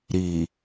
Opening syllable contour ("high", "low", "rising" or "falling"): low